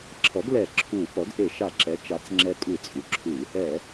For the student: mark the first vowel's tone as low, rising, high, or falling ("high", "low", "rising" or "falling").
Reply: rising